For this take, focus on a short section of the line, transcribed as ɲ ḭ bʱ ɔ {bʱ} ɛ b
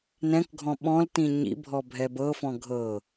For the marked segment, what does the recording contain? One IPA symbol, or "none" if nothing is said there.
bʱ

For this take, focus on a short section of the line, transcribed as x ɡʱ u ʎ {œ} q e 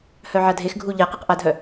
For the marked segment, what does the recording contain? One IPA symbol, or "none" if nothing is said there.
ɛ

